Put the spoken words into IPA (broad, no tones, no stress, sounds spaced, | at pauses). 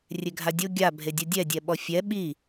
rʲ e ɡʱ a dʲ o ɡʲ a bʱ e dʲ u dʲ ɛ dʲ ɛ ɓ ɔ fʲ ɛ ɓ i